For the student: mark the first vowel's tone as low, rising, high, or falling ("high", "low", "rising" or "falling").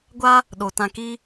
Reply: high